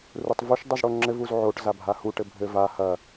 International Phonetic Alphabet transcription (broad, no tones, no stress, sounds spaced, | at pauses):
r u tˤ v u ʃ dˤ u z ɽ o ŋ͡ǁ ɘ v u z ʕ o ʈ z a bʱ a h u ʈ ɘ bʱ ɘ v a h ɐ